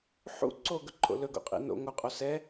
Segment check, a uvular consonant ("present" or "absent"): present